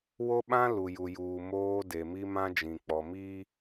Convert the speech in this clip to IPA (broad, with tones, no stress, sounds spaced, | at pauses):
w o˦ ɓ ã˦ l u˨ j u˨ j uː˨ m oː˦ d e˨ m i˦ m ã˦ d͡ʒ ĩ˨ k͡p ɔ˨ m iː˦